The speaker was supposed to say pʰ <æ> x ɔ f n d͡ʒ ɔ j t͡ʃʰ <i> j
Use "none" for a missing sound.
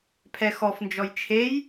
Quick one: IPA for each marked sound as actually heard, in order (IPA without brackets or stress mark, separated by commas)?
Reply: ɛ, e